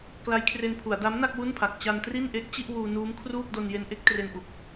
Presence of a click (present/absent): absent